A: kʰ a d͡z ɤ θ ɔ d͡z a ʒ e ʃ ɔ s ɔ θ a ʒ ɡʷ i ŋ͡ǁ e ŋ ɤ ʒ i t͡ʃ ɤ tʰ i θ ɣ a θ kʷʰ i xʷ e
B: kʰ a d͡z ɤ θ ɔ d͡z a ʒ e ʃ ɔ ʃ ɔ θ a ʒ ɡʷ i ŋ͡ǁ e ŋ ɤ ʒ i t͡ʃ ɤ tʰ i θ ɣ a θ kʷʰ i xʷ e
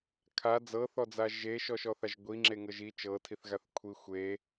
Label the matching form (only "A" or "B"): B